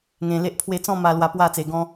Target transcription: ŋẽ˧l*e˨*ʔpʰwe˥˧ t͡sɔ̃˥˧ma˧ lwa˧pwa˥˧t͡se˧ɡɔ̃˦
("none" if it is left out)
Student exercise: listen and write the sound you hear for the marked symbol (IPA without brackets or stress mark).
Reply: e˦